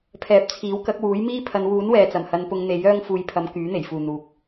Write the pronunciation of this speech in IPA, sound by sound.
pʰ ɛː˨˥ p̚ t͡sʰ iː˨˥ w k ɐ˨˥ k̚ w uː˨˥ j m iː˥ pʰ ɐ˨˧ n w uː˨˥ n w ɛː˨ t͡s ɐ˨˩ m h ɐ˨˧ n p ʊ˨˧ ŋ n̪ e˨˥ j œː˥ ŋ f uː˧ j pʰ ɐ˧ m k yː˨˥ n̪ e˨˩ j f uː˨ n̪ uː˨ k̚

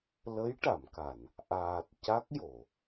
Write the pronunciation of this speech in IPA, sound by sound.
l ə˧˥ j ʈ a˨˩˨ m k a˨˩˨ n | ʔ aː˨˩ t̚ c a˦˥ k̚ j o˨˩˨

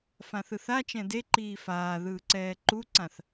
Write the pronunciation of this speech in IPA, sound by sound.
f ã θ ɯ θ a t͡ʃ ɛ̃ d e ǃ iː f aː ð ɯː ǀ ɛː ǃ u ǀ ã θ

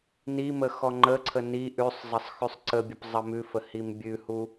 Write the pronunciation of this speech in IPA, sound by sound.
n i m ə x ɔ ŋ͡ǃ ə ǀʰ ə n i ʔ ʉ sˤ zˤ ə sˤ x ʉ sˤ ǀ ə bʲ ə p zˤ ə m ʉ f ə h i m bʲ ʉ h u

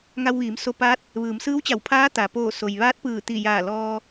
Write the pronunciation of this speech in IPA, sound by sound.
ŋ a˧ w ʋ iː˩˧ m s o˧ p aː˧˥ t̚ | ʋ ɯː˩˧ m s ɯː˧˥ w t͡ɕ a˧˩ w pʰ aː˧˥ t̪ a˩ p oː˧˩ s o˩ j ʋ aː˧˥ t̚ p ɯː˧˩ t̪ i˧˩ j aː˧˩ l ɔː˧

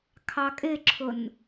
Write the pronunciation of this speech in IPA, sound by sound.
kʰ ɑ kʼ ɪ ǁʰ ʊ n

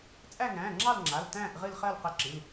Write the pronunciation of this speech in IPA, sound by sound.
t͡sʼ æ˦˨ ŋ æ̃ː˩˧˩ ŋ͡ǁ ɑ˦˨ l ŋ͡ǁ a˩˧˩ l t æ̃ː˦˨ ʔ ʁ ɨ˦˨ l χ ɜ˦˨ l q ɛ˦˨ ǁ ɨ˩˧˩ l

